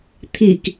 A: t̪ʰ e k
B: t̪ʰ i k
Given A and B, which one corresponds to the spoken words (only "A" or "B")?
B